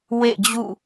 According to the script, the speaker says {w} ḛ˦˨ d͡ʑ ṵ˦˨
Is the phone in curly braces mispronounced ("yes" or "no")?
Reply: no